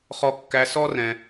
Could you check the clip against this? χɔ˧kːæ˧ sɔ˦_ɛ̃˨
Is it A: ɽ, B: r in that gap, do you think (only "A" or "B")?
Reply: B